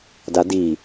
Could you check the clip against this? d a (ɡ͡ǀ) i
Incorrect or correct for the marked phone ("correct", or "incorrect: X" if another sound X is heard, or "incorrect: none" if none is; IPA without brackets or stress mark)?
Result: incorrect: d